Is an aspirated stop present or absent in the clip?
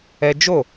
absent